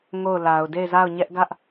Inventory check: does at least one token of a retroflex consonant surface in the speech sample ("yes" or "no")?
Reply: no